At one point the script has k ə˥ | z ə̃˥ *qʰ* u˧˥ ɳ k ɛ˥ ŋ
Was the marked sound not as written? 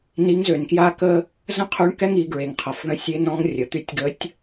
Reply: no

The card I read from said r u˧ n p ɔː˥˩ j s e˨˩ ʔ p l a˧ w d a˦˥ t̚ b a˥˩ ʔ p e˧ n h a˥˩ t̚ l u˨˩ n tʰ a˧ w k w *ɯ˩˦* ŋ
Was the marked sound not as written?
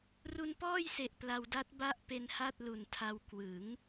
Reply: no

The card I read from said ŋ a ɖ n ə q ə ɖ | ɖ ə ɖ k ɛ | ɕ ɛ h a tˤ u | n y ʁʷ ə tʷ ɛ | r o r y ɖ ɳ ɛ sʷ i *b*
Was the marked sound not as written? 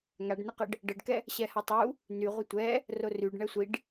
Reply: yes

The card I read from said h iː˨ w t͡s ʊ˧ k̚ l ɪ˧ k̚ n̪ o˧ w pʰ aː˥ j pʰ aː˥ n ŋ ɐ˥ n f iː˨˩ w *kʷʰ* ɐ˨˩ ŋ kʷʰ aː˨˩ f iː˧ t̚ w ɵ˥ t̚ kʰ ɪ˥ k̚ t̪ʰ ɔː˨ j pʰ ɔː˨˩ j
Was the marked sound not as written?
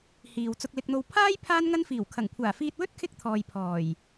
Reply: yes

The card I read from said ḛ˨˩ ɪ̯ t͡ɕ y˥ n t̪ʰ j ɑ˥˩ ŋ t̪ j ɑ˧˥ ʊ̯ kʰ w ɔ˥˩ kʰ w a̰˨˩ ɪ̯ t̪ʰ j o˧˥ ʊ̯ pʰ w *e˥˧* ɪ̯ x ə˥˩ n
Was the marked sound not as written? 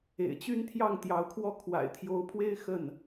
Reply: yes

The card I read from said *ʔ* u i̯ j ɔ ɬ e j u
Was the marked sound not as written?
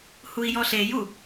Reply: yes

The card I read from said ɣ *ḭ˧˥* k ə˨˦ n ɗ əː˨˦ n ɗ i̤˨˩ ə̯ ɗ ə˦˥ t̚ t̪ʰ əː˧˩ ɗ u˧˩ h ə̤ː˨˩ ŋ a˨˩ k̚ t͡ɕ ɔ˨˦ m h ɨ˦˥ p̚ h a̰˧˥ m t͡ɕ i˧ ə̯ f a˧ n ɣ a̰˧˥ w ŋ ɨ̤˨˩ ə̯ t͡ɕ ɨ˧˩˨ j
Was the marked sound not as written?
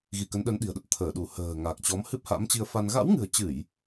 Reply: yes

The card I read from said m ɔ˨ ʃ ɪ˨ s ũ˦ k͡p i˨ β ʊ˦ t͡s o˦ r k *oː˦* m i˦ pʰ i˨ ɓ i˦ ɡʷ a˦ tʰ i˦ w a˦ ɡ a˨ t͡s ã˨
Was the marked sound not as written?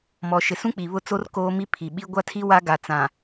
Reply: no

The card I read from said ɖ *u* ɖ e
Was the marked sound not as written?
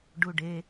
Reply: no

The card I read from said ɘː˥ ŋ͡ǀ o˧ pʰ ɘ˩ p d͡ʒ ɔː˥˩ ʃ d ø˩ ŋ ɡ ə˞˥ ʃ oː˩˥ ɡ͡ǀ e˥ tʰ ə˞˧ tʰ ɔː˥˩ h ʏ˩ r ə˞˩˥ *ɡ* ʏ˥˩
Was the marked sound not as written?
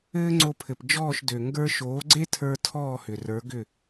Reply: no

